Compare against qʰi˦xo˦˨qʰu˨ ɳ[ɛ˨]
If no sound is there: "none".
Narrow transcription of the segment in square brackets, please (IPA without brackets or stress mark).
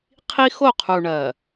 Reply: ɜ˨